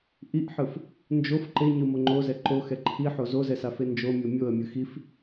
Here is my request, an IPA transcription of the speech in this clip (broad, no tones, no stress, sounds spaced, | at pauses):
ʔ i ʔ ħ ɯ f | n d͡ʒ o f ǃ e ɲ ɯ m o ŋ͡ǃ o z ɛ ǃ o x ɛ ǃʰ i ħ o z o z ɛ s a f e n d͡ʒ o mʲ o mʲ o ə̯ mʲ ɯ x i f